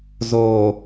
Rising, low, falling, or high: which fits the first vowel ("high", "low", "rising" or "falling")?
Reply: low